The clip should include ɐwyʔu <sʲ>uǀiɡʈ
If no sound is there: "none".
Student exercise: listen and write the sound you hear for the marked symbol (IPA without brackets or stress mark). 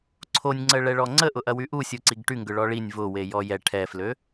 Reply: sʲ